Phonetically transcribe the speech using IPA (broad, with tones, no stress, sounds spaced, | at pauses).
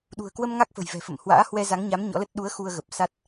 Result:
ɗ ṳ˨˩ ə̯ k w ə˧ m ŋ a˦˥ k̚ f ə̤˨˩ j v ɛ̤˨˩ f ə̰˧˨ m h w a̰ː˧˥ h w ɛ˧ z a˨˦ ŋ ɲ a˨˦ m ɲ ɔ̰˧˥ l ə˦˥ t̚ ɗ u˨˦ ə̯ x u˧ ə̯ ɣ ə˨˩ p̚ s a˦˥ t̚